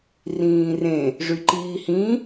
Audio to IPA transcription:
r ĩː r ẽ | ʐ y ǃ iː h ĩ

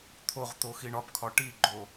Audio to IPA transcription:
t̪ʰ o ʁ t̪ o x i ɳ ɒ p kʰ ɒ ʈ i ɡ͡ǃ o

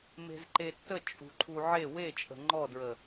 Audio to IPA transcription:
m e̤ z ǃ e tː ə t͡ʃʼ ṳ ǃʰ u ʕ e w e t͡ʃʼ ə̤ ŋ͡ǃ ɔ d ɹ ə

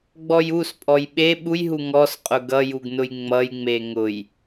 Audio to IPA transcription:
ɡ͡b ɔ j u s pʼ ɔ j ɓ e ɓ u j ɦ u ŋ ɔ s qʼ ʊ ɡ ʌ j u ɡ n ʊ j ŋ͡m ʌ j ŋ͡m e ŋ ʊ j

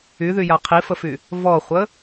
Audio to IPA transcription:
y ð y j a qʰ i f ə f y | v ɔ χʷ ə

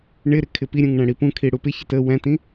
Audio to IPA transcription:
ɳ ɪ ɾ ɪ kʰ ɪ p i ɾʲ ũ ŋ ɳ æ̃ ɽ i p ũ kʰ i ɽ u p ɪ ç ɪ t ə w æ̃ t ĩ

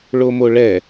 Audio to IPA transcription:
ɭ o m o ɭ ɛ

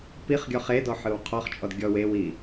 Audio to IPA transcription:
p i χ ɡʲ ɔ χ e d ɔ ħ ɯ w qʰ ɔ χ t͡ʃʼ ɔ d ɡʲ ɔ w e w i

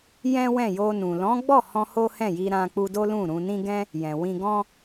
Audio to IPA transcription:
j ɛ̃˦ w ɛ̃˦˨ j o˧ n ũ˨ l ɔ̃˨˦ ɡ͡b ɔ˦˨ h ɔ̃˧ h o˦ h ɛ̃˦˨ j i˧ ɾ ã˧ k͡p u˧ d o˦ l ũ˦˨ ɾ ũ˧ n ĩ˦ ɡ ɛ̃˦ | j ɛ̃˨ w ĩ˧ ɡ ɔ̃˦

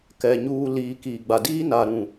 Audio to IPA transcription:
k ɛ˨ ɲ uː˨ l iː˨ k iː˨ ɡ͡b a˨ d iː˦ n a˨ ɾ ũ˨

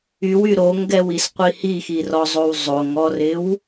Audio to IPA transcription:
y w y ɾ o ŋ ɡ ɛ w i s qʷ i h i x i r ɔ zˤ o w zˤ o ŋ ɔ r ɪ w

